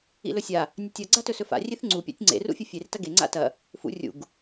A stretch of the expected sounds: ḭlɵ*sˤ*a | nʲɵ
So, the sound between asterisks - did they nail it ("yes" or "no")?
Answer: no